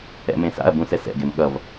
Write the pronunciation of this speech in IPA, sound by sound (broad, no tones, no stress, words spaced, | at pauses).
ɛ̰mẽsa̰ɐ̯ bũsɛsɛ̰ ɡemɠʌv